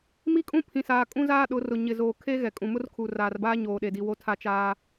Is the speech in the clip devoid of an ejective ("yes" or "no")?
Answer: no